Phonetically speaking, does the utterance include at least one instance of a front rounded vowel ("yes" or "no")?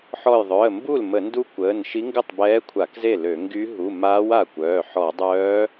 yes